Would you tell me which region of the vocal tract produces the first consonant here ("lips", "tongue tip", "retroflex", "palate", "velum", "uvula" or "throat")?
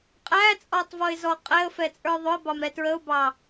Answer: uvula